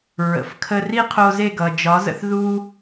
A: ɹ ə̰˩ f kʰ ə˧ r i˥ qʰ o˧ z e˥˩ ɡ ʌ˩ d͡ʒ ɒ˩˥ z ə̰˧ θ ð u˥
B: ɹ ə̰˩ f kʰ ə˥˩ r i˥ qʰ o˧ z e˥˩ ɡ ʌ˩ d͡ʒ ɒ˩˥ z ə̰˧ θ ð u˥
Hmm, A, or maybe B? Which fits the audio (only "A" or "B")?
A